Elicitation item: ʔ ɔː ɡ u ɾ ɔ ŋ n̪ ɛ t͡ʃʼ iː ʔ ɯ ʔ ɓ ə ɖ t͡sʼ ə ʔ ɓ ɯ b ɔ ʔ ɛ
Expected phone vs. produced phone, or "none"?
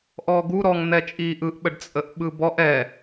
none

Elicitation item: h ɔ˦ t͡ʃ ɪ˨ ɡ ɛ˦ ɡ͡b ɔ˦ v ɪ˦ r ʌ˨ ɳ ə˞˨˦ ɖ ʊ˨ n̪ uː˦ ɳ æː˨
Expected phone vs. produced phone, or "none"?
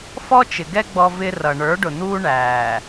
h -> f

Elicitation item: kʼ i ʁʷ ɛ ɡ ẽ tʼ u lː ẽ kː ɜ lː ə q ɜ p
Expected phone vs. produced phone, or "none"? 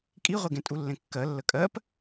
q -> kʼ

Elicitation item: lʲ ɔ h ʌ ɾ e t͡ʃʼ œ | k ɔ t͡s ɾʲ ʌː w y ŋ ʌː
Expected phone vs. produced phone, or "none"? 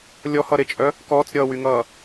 none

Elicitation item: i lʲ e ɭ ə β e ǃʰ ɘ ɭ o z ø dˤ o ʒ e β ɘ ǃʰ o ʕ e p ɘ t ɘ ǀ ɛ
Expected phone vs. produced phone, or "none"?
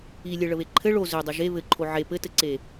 ɛ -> e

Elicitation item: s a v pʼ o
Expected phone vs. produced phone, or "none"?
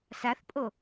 v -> θ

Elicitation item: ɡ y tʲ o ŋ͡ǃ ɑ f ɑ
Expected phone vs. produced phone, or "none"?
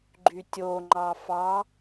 ɡ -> ɡ͡ǃ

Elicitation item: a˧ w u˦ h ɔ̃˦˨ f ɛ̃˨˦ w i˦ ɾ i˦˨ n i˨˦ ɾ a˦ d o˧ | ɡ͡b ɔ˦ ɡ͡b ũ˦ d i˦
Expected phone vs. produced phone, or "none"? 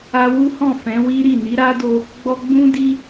none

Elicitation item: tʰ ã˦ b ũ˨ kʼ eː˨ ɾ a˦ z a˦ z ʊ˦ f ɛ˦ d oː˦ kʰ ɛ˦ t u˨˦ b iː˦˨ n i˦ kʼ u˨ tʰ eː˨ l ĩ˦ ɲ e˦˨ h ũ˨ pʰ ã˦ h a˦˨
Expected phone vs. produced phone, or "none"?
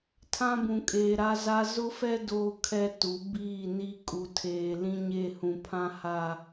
none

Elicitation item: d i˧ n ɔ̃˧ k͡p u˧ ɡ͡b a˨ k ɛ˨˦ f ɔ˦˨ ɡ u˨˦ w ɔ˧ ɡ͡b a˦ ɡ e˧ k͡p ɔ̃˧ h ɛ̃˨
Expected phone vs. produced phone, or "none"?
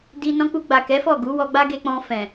h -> f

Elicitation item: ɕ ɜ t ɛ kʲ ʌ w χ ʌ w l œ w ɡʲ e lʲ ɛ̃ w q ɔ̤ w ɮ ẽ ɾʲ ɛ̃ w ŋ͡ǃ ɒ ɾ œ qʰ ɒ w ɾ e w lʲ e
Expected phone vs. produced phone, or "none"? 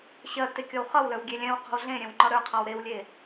ɛ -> e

